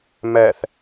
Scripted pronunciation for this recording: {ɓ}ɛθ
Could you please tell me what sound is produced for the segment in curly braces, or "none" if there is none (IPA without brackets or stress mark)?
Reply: m